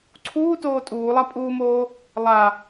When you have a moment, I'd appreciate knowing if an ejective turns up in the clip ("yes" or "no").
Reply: yes